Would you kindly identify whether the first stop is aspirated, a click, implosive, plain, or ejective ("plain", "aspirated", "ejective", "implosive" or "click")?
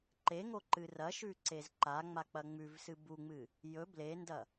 click